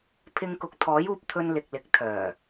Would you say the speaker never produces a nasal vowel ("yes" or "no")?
yes